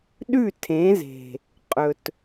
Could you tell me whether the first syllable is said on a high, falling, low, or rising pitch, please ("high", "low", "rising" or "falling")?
falling